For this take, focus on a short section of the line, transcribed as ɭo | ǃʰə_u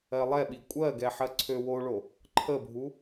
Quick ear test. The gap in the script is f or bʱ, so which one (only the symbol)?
bʱ